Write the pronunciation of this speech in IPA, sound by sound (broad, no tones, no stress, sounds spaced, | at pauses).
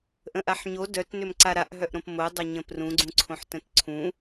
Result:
ʔ ə̃ ʔ a ħ ɲ o d œ t n ʏ m ǀ a ɾ a ʔ ɦ œ ʔ ɾ õ p m o dˤ œ ɲ ə̃ p r ũ ɡ͡ǀ ũ ǀʰ õ ħ t ə̃ t ǀʰ ũ